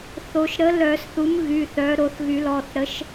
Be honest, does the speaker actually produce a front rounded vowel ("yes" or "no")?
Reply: yes